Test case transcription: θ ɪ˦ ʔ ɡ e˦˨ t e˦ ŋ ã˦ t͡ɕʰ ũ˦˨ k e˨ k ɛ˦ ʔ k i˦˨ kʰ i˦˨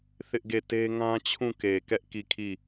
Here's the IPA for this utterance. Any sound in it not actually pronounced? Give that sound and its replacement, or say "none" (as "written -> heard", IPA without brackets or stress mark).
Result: none